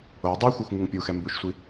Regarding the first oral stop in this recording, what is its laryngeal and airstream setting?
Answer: plain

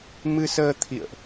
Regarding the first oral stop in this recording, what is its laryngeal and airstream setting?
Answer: aspirated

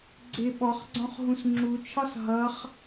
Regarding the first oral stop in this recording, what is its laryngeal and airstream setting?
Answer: click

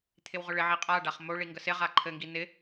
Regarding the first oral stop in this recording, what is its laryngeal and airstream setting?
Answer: aspirated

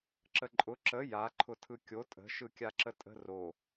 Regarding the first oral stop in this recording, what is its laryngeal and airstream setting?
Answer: click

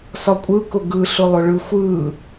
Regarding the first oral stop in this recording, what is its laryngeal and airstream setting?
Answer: ejective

